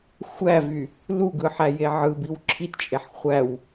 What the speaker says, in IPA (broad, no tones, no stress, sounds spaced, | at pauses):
xʷ æ v y | l u ɡ ɯ ħ æ j e ʕ ɯ b i w ǁʰ i t t͡ʃʼ e ħ χʷ æ w